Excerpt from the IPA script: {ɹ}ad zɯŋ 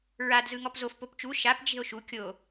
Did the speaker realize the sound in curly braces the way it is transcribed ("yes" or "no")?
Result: yes